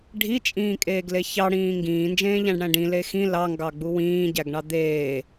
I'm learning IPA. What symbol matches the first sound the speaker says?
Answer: ɖʱ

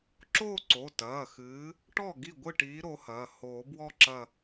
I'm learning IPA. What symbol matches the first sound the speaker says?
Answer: ǁ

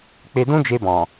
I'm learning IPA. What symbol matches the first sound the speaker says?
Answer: k͡p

